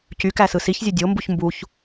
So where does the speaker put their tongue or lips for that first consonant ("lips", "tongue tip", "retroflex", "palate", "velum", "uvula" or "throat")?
palate